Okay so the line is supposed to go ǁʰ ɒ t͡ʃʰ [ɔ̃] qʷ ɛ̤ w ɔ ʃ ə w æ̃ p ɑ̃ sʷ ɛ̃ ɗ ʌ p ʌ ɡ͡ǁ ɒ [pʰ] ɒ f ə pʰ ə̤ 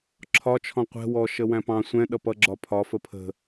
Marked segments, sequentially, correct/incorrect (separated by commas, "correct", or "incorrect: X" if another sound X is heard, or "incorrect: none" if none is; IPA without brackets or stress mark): correct, correct